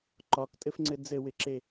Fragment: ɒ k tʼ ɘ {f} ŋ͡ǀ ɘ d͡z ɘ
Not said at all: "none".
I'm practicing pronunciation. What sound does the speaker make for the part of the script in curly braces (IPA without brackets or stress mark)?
f